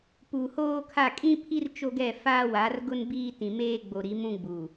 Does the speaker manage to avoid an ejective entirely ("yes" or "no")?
no